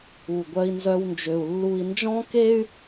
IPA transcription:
u˧˩ɡʷœ˥i̯nzœ˥wnd͡ʒø˧u̯ lːu˧i̯nd͡ʒɔ̃˥ke˥y̯

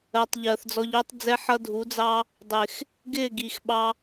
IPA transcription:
ɜ˨tˤʎɜ˨θd͡zɔ˧ʎʊː˦tˤ d͡zɛ˦ħʌ˦ dʱu˨˦d͡zɑ˦ | dˤɪ˨x | ɡɪː˦˨ɡi˨xɓɑ˧

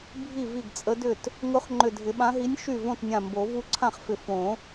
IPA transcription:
bʱi˥˩vi˥˩ɡt͡sʼə˧˥dʏ˥˩t | ŋʊ˧˥χ ŋ͡ǃʏ˧˩dʱɪ˨˩˦ɓã˧˥ɦi˧˥nʲ ʃy˥˩ võ˥˩tnʲã˧˩mbo˨˩˦ vu˧˥ǀʰã˥˩χfɪ˧˩ fõ˨˩˦

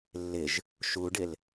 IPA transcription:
lːɪʒ | ʃuɖɪl

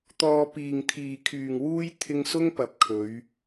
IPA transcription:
t̪ɔː˧piː˨ŋt̪ʰiː˨kʰyː˨ŋ wuː˥j t̪ʰɪ˧ŋ sʊ˥ŋpɐ˨p̚kʰɵ˨˧ɥ

